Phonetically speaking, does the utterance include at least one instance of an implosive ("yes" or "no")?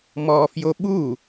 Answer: yes